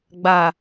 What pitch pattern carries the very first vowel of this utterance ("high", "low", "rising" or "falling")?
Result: low